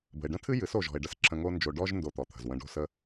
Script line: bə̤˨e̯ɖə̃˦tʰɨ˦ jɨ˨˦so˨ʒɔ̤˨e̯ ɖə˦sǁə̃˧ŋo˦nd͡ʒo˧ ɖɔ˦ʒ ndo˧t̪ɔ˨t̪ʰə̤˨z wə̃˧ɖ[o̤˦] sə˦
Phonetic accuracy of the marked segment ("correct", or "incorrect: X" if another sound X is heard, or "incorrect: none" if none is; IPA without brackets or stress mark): correct